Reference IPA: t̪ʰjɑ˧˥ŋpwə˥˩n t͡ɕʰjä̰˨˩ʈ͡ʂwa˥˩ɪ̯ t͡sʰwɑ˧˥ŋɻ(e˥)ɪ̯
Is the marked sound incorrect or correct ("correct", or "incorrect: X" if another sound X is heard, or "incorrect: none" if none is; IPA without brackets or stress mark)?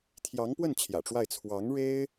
correct